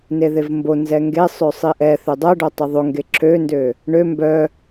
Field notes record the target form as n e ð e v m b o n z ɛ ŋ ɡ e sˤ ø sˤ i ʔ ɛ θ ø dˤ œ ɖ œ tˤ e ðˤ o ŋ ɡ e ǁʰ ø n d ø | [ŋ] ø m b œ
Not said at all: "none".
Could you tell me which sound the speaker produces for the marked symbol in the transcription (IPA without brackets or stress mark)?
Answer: ɳ